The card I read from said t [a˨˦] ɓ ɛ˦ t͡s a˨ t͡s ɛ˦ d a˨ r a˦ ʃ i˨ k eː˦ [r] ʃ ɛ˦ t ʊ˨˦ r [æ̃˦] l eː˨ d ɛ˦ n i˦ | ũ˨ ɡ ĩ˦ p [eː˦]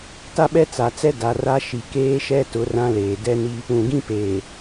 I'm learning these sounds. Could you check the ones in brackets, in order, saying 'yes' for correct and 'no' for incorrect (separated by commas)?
no, no, no, no